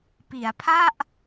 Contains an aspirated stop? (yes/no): yes